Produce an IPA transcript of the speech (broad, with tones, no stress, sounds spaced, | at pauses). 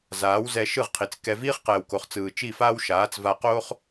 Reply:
z aː˨˦ w z ɛ˧ ʃ ɯ˦˨ ʁ qʰ i˨ t͡s k ɛ˧ v iː˦ χ q ɛː˨ w k o˨ χ t͡s ɯː˨ t͡ʃ i˦˨ f aː˦ w ʃ aː˨˦ t͡s v a˧ q oː˦ χ